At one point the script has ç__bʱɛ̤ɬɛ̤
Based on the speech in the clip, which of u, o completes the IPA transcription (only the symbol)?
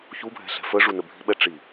u